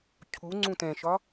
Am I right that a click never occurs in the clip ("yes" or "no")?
no